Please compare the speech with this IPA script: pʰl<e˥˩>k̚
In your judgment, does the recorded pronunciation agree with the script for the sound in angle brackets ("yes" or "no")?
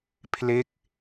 yes